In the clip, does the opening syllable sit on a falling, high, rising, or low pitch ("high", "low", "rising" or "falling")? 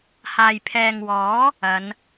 low